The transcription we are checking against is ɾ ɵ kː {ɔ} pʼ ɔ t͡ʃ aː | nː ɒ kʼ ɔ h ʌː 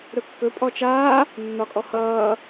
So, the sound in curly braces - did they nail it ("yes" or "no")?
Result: no